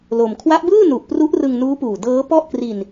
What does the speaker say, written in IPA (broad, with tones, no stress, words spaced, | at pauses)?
lo˧m kʰwa˦˥ʔbɯː˥˩nu˨˩ʔ pru˦˥ʔrɯ˧ŋnuː˦˥puː˨˩ dɤː˦˥pɔ˥˩ʔkri˧n